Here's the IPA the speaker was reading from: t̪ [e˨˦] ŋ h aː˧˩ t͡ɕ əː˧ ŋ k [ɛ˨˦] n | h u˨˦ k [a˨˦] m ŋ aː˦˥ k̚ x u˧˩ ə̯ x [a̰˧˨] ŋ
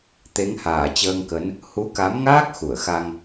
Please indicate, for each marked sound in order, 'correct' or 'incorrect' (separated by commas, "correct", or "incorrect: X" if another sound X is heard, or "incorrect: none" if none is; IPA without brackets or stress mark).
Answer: correct, incorrect: ə˨˦, correct, incorrect: a˧